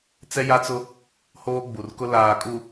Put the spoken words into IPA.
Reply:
t͡s ɛ˦ j a˦ t͡s ʊ˦ | h oː˦ ɡ͡b u˨ r k ʊ˦ l aː˨ kʼ u˨

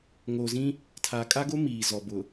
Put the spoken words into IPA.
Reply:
ŋ oː˨ z ĩ˦ | tʰ aː˨ kʼ a˦ ɡ o˦ m iː˨ z ɔ˨ b ʊ˨

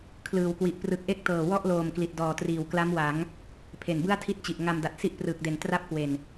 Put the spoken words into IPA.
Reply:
kʰ l ɯː˩˦ w k w i˨˩ ʔ p r ɯ˨˩ k̚ ʔ e˥˩ k̚ t ɤː˨˩ w ɔ˥˩ ʔ l oː˨˩ m k l i˨˩ t̚ d ɔː˨˩ t r iː˨˩ w k l a˦˥ m w a˩˦ ŋ | pʰ e˨˩ n b ɯ˥˩ a̯ tʰ i˥˩ t̚ t͡ɕ i˨˩ ʔ ŋ a˧ m d a˨˩ t̚ s i˥˩ ʔ p r ɯː˨˩ k̚ d e˨˩ n t r a˥˩ p̚ k w e˨˩ n

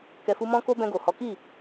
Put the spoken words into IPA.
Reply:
k ɛ˨ f u˧ m ɔ̃˦ k o˦ b ɛ̃˧ ɡ o˨ h ɔ˨˦ k i˦˨

